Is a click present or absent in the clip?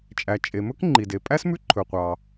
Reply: present